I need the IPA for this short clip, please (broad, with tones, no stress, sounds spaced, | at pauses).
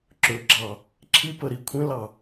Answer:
ǁ ɵ˨ ɡ͡ǁ ɑ˨ | ǁʰ i˦ p ə˨ ɾ i˨ kʷʰ ẽ˦ l ɑ˨